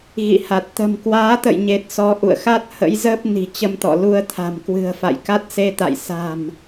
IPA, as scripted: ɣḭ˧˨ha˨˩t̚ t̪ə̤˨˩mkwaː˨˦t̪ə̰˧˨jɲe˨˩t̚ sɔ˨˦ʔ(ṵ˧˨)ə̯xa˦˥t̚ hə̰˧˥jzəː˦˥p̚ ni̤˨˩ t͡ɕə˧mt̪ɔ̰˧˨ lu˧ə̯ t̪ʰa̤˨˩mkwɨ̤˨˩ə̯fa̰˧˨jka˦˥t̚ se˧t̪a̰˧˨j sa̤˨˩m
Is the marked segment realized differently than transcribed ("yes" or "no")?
no